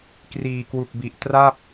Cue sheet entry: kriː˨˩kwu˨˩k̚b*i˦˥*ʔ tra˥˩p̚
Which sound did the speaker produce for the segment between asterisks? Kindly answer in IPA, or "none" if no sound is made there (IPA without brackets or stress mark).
i˨˩